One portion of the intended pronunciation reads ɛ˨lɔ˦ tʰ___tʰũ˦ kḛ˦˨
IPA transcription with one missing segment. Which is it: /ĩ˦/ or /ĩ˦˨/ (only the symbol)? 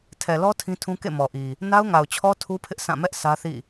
ĩ˦